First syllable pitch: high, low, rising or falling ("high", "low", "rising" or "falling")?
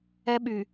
high